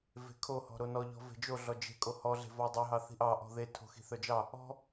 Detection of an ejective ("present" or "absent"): present